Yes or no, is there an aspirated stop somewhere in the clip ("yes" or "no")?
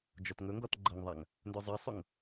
no